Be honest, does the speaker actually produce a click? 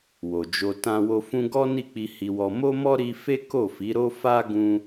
no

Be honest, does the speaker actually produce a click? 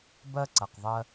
yes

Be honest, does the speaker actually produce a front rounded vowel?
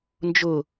no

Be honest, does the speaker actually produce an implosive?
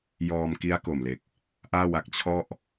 no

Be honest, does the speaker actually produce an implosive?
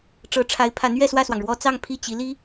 no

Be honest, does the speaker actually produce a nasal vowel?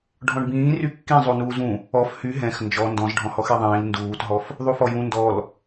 yes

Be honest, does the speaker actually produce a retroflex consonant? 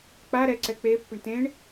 yes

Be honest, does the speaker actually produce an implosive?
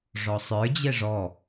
no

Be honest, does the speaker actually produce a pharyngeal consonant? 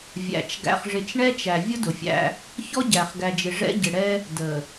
no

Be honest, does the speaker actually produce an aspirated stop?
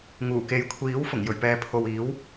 yes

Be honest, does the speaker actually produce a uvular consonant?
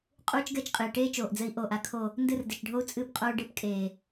yes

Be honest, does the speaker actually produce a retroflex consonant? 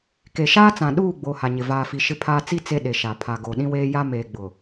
no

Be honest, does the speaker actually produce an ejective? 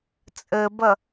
yes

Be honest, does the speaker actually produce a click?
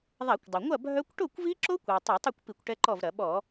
yes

